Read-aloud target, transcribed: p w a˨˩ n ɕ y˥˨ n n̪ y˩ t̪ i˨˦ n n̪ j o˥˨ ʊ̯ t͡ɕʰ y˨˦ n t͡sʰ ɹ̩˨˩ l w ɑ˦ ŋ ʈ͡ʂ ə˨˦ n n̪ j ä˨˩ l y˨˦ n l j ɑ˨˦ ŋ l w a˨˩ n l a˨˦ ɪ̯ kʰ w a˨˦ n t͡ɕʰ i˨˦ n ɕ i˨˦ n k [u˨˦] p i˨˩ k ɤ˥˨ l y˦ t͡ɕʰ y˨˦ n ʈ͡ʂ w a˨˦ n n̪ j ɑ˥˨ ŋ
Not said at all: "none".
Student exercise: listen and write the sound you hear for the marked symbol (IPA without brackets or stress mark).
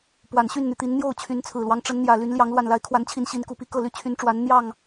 u˨˦